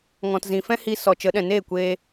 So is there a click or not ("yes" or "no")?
no